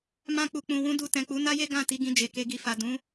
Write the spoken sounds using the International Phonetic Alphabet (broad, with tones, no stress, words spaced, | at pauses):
mã˧k͡pu˨k͡pũ˨ wũ˨˦du˧ tɛ̃˨k͡pu˨˦na˦je˦ ɡã˦˨ ti˨˦ɡĩ˧d͡ʒe˨ ke˨ɡi˨fa˨ dũ˨˦